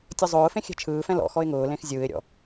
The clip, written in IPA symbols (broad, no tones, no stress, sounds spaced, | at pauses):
tʲ ɔ zˤ ʊː f ẽ xʲ ɛ̤ t͡ʃʰ ɯː f ɛ̃ l ɔ̰ x ɔ ɪ̯ ŋ ʊː l ẽ x zʲ ɯː ɪ̯ ɾʲ ɔ̰